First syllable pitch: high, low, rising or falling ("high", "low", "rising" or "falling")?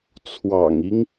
low